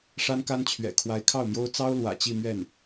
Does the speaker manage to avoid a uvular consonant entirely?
yes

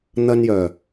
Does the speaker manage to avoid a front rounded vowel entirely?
no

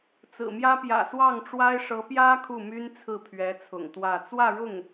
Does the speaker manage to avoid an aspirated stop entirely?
no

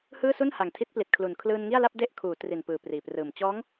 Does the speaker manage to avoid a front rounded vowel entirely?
yes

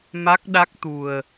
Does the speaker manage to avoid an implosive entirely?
no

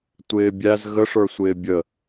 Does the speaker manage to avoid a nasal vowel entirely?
yes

